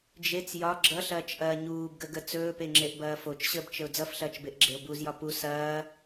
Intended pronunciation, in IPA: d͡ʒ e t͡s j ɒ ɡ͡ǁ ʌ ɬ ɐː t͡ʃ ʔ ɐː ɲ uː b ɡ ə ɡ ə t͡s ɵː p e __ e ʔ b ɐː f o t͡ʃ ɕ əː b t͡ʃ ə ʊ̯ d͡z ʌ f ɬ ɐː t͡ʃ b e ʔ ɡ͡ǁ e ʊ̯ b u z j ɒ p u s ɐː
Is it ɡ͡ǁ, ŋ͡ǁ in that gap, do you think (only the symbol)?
ŋ͡ǁ